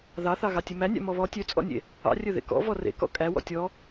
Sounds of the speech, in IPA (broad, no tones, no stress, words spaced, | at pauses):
ðɑθɑɣɑ tʲemænʲɑ̰ mɔβɔ tʲøt͡sʼɔ̰nʲḛ | ɑ̰ rʲɵðḛkɔ̰ vɔrḛ kɔ̰kʼæ wɔ̰tʲɔ